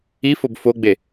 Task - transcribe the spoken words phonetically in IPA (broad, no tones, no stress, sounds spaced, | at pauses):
i f o b f o ɡ͡b e